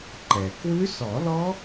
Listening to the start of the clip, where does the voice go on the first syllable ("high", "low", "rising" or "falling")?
low